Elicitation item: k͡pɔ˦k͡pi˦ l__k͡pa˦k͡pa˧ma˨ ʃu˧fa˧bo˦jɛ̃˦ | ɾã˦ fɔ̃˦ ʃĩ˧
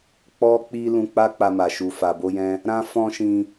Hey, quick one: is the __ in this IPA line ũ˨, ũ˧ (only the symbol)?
ũ˧